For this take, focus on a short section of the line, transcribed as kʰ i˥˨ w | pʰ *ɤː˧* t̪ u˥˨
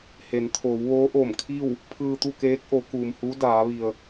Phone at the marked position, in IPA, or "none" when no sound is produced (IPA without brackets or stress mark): ɯː˧